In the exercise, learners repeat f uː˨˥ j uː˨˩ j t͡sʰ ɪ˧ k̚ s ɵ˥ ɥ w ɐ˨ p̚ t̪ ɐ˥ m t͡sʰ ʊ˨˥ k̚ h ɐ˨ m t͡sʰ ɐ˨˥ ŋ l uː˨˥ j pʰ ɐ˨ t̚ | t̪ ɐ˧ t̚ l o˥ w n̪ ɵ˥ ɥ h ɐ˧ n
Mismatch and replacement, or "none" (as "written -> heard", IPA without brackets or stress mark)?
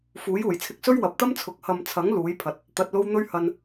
none